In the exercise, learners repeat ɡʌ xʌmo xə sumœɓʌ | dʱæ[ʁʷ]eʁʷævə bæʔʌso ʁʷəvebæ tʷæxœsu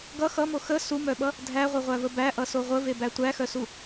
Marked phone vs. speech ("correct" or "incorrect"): correct